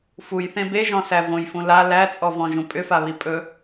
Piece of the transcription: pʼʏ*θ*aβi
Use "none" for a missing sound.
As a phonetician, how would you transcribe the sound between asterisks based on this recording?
f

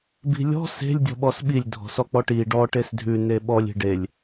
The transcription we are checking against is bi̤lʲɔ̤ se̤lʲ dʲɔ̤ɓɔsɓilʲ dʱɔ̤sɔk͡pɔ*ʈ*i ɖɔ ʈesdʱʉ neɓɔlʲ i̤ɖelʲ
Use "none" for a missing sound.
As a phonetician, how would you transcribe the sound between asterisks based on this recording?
ʈ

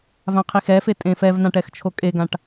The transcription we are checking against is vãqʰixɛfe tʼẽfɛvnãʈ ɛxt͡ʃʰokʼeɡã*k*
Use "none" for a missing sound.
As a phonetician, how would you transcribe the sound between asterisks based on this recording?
ʈ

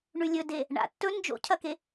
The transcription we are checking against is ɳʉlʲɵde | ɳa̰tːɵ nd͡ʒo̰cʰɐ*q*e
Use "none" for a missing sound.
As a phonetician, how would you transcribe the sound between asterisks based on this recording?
k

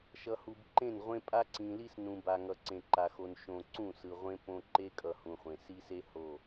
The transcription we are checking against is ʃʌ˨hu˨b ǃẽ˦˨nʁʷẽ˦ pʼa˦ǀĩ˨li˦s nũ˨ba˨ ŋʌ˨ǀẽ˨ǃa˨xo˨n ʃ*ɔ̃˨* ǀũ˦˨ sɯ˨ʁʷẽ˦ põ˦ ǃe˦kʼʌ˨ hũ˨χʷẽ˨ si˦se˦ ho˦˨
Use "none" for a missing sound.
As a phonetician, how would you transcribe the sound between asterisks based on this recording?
õ˨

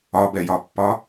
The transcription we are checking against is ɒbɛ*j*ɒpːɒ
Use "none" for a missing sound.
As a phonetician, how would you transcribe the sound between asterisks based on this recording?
j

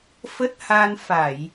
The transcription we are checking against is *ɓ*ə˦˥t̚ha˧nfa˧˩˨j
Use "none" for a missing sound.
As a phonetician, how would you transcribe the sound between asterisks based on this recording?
f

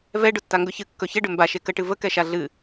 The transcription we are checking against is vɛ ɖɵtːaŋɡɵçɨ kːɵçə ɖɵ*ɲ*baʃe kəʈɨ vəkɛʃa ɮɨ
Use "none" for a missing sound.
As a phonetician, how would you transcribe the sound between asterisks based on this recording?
m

